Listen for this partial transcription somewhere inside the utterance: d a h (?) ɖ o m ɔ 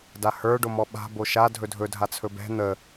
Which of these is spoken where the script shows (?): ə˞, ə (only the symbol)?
ə˞